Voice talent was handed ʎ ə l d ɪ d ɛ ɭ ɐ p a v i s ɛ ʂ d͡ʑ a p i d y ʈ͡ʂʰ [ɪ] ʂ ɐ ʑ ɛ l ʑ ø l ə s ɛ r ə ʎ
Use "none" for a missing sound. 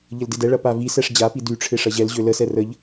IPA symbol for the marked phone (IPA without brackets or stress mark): ɪ